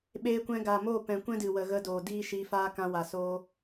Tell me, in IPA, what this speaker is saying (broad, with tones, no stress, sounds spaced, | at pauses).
ɓ eː˧ kʷ ɛ̃˧ ɡ a˨ m oː˦˨ p ɛ̃˨ kʷ ɛ̃˦ d ɨ˨ w ə˨ ɣ ə˧ d oː˨ d iː˦ ʃ i˧ f aː˦ k ã˧ w a˨ s oː˧